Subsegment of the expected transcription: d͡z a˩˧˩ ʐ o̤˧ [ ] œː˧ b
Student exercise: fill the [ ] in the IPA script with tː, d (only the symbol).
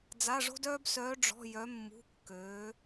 d